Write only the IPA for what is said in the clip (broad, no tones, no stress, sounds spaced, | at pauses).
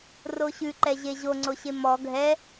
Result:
r o ɕ ʉ ǃ ɛ ʑ e ʑ o ŋ͡ǀ o ɕ e m ɔ ɡʱ ɛ